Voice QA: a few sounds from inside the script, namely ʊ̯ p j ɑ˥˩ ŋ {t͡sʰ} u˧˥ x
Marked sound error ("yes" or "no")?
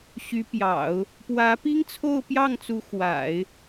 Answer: yes